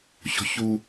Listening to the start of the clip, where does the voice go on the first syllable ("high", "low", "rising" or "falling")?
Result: high